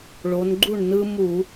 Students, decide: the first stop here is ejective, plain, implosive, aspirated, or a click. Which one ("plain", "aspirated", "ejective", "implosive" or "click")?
click